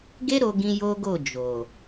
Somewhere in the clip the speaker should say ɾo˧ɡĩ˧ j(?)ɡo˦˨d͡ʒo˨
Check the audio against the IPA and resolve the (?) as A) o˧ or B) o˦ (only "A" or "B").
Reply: B